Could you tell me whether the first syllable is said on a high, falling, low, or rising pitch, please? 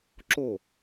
falling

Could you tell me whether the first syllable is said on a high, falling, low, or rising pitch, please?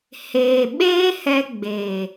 low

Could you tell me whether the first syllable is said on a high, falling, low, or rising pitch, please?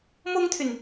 high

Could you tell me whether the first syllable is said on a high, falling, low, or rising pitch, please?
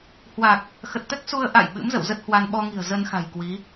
low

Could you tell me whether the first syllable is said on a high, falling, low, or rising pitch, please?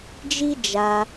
high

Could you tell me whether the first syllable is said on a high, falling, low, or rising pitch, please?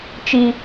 high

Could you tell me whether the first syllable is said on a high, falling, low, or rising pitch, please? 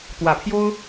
low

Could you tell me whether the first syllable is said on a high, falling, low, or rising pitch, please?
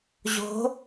rising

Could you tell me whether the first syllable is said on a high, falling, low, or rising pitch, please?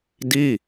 falling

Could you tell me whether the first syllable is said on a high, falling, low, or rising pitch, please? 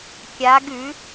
rising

